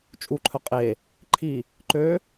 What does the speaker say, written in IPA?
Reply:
t͡ʃʼuǃʰœ qʼe | ǃʰi | ǃø

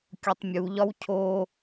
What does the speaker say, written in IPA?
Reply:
kʲotˤmʲuʎɒw cʰo

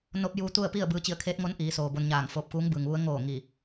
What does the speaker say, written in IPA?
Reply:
no˧˥p̚juː˧t̪u˥˨ə̯ pi˥˨ə̯ bɯː˧t͡ɕi˧˩ə̯kʰeː˧˥t̚ŋo˧˥n ʔiː˩˧soː˩ bo˧nɲaː˧˩ŋ foː˧˩p̚kuː˧˥ŋbɯː˩ŋʋu˧˥ə̯ ŋoː˧˩ ŋiː˧˩

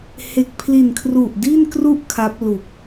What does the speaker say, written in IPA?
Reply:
he˨˩k̚pʰli˨˩nkʰru˨˩ʔ di˥˩nkru˥˩ʔkʰa˦˥p̚ lu˨˩k̚

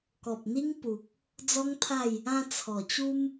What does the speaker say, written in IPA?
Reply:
kɔ˨p̚n̪i˦ŋ pu˨k̚ | d͡zɔ˦ŋt̪ʰa˥˧j | ã˧ t͡sʰɔ˨˩t͡ɕu˦m

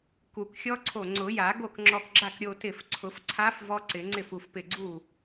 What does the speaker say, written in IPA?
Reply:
ku˨˩˦kxʲɔ˦˥ǀʰo˧˩ ŋ͡ǀʊ˨˩˦ja˨˩˦ ɡo˥˩kŋ͡ǁɔ˧˩kɡ͡ǁa˥˩k ɾʲo˧tɪ˧˩f ǀʰʊ˨˩˦fǀʰa˦˥f vɔ˦˥ǀɪ˨˩˦ŋ͡ǀɪ˥˩f u˧˩fpɪ˧˩ɡ͡ǀu˥˩

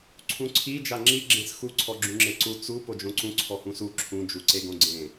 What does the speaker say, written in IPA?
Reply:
ǀʰũǀʰi d͡ʒaŋ͡ǁi ɡ͡ǁẽsxu ǀʰɔɡ͡ǁũŋ͡ǁeǀu t͡su pod͡ʒõǀũ ǀʰɔhũsu ǁʰũ d͡ʒuǀeɡõɡ͡ǀẽ

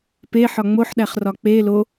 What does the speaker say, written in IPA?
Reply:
peħɒ ŋ͡moħɗæχrɒ k͡pe lo

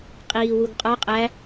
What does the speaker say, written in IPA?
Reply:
qʼiːwuɡqʼɒ qʼæ

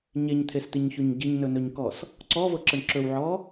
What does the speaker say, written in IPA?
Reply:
ɲeɲt̪ʰest̪iɲçɵɲ ɟiɲnɵnɵɲkɔs | ǀɔvɤǁəɳ ǁɵwʕɔ

